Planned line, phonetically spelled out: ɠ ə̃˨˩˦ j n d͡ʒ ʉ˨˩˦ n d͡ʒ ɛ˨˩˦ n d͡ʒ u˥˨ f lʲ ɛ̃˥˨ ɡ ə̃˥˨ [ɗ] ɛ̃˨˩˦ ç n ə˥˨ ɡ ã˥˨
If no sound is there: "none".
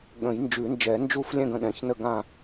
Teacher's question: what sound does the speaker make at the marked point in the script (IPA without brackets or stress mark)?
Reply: ɗ